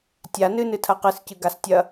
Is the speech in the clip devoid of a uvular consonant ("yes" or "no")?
no